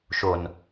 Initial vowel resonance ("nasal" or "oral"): oral